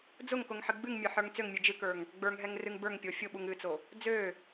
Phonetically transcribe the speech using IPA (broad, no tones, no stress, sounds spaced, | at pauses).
d͡z ʊ ŋ k ʊ ŋ ħ ɨ ɡ͡b ɨ ŋ mʲ ə˞ ħ ə˞ ŋ t͡s ø ŋ mʲ ɨ d͡ʒ ɨ k ə˞ ŋ | ɡ͡b ə˞ ŋ ɦ ɛ ŋ r ɨ ŋ b ə˞ ŋ pʲ o fʲ ʊ ɓ u ŋ ɨ t͡s o | d͡z ø